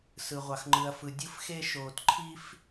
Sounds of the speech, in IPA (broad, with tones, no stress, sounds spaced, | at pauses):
s ɯ˧ ʁʷ ɑ˧ x ŋ͡ǃ ɯ˧ ɐ̯ f ɯ˧ dʲ ɯ˥ f x e˥ ʃ oː˧ t ǃʰ i˥ f